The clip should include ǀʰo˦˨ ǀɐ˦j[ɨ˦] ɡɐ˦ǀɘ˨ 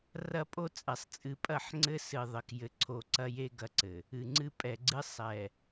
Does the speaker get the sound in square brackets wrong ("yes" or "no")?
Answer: yes